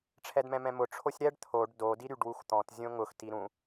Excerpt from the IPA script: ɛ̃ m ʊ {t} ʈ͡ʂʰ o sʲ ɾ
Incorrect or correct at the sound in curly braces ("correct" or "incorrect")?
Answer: incorrect